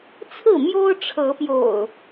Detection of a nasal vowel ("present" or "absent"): absent